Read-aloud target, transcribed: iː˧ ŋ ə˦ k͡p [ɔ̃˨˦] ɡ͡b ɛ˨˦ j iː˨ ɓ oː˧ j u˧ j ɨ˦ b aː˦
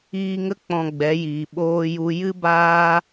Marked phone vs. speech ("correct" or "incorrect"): incorrect